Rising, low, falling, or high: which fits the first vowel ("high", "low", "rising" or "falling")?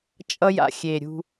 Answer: high